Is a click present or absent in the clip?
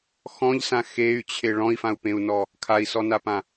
absent